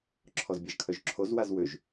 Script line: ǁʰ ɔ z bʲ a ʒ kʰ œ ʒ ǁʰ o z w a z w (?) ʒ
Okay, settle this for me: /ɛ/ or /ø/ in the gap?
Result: ø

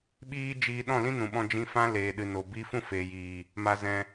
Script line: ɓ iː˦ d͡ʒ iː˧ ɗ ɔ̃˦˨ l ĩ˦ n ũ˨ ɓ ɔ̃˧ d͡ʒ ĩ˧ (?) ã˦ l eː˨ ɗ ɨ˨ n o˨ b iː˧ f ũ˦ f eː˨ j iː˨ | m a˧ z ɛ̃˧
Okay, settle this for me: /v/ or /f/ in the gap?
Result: f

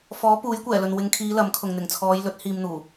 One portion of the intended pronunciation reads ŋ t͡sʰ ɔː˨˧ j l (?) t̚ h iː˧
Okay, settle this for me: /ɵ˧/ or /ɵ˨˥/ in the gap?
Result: ɵ˨˥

